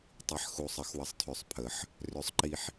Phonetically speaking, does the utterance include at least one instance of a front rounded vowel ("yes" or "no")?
yes